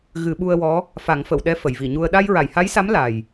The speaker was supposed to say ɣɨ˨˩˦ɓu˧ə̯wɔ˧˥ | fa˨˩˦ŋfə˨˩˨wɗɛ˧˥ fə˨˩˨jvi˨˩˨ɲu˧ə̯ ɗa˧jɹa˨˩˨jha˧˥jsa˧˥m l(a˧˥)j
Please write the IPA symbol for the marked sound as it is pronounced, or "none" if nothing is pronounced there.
a˨˩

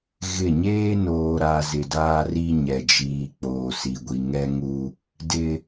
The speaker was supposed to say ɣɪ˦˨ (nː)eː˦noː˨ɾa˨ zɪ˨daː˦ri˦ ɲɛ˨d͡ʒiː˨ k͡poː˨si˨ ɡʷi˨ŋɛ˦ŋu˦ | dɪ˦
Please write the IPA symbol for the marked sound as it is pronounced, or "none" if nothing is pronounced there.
ɲ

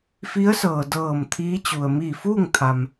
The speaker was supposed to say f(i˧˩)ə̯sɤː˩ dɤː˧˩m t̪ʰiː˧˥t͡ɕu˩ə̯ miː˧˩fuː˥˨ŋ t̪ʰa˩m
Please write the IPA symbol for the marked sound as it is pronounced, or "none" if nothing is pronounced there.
i˧˥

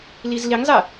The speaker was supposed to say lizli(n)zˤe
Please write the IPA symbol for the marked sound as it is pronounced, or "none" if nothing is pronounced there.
ŋ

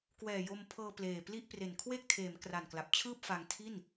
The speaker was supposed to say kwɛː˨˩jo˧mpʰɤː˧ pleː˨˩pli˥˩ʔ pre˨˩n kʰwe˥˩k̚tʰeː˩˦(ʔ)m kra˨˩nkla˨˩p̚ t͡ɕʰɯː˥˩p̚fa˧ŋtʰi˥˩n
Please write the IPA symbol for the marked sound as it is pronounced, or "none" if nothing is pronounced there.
none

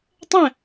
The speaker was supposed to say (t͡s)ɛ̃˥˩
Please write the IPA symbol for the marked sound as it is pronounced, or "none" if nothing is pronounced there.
tˤ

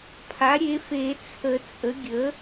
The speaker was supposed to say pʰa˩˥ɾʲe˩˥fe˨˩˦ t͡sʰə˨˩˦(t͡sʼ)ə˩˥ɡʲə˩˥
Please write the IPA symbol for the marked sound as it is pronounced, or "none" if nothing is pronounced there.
t͡sʼ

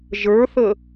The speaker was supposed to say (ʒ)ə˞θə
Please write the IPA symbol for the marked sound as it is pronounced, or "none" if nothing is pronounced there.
ʒ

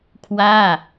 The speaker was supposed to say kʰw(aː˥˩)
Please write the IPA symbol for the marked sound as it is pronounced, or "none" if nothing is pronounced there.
aː˥˩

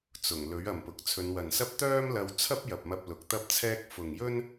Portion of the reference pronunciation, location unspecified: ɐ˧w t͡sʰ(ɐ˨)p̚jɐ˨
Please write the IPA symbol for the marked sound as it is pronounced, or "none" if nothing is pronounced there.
ɐ˥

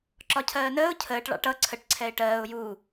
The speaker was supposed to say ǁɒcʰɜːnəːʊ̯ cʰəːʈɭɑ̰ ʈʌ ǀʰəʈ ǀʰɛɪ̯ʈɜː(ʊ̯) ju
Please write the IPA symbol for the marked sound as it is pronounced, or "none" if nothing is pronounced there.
ʊ̯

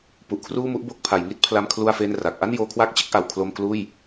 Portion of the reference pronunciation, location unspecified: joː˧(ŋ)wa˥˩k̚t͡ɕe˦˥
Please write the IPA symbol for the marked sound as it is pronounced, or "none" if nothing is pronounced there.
kʰ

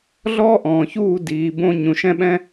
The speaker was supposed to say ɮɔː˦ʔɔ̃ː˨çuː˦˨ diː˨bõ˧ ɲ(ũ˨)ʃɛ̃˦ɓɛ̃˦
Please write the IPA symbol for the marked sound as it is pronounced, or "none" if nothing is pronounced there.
ũ˨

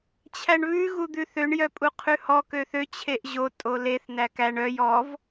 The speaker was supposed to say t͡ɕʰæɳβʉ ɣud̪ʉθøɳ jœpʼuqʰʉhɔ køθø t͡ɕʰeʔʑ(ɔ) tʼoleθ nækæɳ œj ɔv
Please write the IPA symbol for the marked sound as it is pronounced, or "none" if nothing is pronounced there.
o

